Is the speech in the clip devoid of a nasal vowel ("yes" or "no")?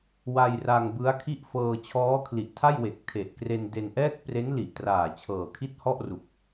yes